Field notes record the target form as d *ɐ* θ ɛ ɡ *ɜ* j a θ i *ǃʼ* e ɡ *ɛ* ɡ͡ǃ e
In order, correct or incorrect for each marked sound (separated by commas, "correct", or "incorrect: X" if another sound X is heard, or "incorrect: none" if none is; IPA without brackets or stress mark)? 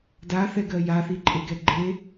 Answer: incorrect: a, correct, correct, correct